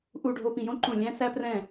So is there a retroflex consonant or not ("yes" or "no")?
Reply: yes